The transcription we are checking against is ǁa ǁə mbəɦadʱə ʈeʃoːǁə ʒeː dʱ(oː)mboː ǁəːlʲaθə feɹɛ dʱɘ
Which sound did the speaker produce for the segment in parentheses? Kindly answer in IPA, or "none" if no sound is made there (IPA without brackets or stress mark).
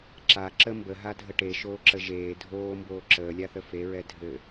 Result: oː